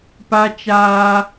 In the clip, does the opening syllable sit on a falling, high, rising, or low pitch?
high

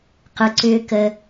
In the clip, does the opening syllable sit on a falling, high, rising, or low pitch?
low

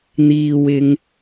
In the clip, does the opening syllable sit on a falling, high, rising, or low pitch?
low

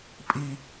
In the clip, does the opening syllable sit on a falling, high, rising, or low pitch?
high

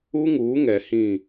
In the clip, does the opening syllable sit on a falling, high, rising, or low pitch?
high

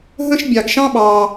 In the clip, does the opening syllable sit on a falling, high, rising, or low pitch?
high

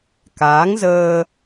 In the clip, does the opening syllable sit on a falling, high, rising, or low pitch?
rising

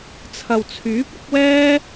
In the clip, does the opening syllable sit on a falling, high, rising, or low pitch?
low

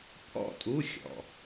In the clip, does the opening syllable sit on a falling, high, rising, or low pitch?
falling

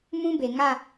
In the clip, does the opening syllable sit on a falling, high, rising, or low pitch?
high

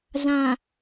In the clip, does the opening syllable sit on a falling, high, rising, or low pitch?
low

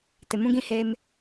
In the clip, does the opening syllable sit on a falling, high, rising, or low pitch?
low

